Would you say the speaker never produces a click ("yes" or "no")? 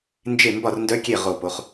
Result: yes